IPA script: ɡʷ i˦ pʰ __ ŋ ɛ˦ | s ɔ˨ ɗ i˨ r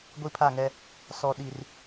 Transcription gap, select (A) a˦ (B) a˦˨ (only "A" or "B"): B